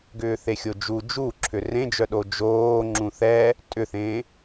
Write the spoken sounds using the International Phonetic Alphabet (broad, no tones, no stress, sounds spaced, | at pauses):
ɡ ʏː θ e xʲ o d͡ʒ u d͡ʒ u ǁʰ ʏ r ẽ d͡ʒ œ ɗ o d͡ʒ oː ŋ͡ǁ ũ θ ɛ | tʼ ʏ θ ẽ